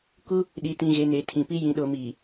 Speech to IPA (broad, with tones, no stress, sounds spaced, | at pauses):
k u˦ | ɗ i˨ t ĩ˨ ɣ e˨ n e˨ tʰ ĩ˨ p i˦ j ĩ˨ ɗ o˨ m iː˨